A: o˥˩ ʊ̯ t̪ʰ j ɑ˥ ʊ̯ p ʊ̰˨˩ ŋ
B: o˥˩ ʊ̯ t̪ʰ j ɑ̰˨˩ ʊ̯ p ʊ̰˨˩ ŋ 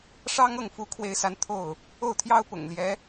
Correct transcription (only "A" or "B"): A